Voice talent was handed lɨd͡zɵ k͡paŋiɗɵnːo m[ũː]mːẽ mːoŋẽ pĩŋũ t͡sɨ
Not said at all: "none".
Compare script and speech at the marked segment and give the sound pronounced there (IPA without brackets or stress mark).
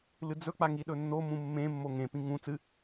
ũ